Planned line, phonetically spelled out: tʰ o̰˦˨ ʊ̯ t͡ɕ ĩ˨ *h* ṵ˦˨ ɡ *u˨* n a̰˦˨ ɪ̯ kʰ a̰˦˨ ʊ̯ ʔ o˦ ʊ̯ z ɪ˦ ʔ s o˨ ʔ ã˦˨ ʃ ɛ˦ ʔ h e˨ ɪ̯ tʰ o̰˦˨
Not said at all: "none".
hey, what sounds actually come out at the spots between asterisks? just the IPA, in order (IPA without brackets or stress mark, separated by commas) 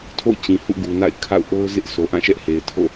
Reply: h, u˨